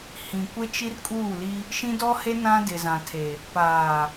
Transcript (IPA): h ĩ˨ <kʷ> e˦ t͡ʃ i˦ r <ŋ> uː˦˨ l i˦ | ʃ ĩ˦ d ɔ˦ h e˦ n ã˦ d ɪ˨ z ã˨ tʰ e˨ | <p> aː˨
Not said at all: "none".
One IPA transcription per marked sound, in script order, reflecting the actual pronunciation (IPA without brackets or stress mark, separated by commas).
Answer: kʷ, kʼ, p